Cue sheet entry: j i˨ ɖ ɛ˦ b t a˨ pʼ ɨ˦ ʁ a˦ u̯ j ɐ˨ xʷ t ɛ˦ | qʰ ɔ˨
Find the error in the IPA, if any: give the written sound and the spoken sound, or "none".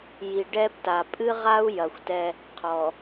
none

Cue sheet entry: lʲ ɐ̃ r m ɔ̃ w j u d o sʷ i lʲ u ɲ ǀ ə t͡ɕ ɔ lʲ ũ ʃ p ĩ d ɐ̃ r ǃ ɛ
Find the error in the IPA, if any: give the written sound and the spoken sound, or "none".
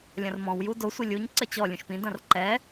none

